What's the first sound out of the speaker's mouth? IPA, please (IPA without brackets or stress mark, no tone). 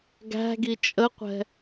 ɡ